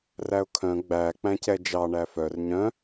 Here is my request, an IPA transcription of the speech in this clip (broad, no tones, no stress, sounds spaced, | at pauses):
r æ ʊ̯ kʰ œ̃ ɡ͡b æ k͡p æ̃ c ɛ d͡ʒ ɑ ɳ æ f œ r ɲ œ̃